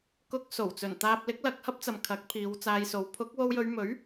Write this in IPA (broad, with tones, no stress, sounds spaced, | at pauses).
k ʊ˧ k̚ s o˨˩ w t͡s ɵ˨˩ n t̪ aː˨ p̚ l ɪ˨˥ k̚ l ɐ˨ k̚ h ɐ˥ p̚ t͡s ɐ˨ m kʰ ɐ˨˥ k̚ pʰ iː˨˧ w t͡s aː˧ j s o˨˥ w pʰ ʊ˨˥ k̚ w o˧ w j ɵ˨˧ ɥ m ɵ˨˥ ɥ